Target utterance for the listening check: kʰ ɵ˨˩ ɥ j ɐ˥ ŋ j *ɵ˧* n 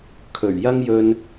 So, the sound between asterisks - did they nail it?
yes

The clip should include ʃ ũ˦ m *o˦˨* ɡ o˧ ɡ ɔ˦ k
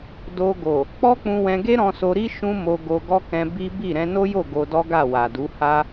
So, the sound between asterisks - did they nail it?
no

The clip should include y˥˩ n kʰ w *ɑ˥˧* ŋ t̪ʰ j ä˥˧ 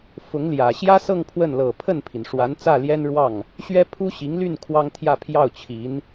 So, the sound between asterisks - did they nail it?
no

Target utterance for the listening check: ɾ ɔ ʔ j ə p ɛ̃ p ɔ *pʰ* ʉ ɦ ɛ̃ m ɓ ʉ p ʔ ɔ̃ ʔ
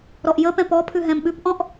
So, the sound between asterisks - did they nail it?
yes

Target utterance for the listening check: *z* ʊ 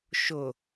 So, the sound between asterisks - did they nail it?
no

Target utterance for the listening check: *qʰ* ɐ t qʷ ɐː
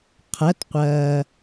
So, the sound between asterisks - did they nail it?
yes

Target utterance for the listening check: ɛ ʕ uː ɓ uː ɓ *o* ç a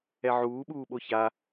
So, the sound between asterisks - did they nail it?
yes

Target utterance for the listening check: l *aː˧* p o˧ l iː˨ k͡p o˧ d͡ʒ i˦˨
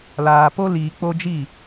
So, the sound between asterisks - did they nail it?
no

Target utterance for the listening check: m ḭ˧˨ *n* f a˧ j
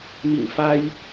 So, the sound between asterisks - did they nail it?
no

